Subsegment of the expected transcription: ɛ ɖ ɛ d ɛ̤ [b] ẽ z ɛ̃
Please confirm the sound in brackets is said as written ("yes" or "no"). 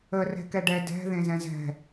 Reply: no